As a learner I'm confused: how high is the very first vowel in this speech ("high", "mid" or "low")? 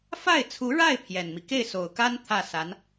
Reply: low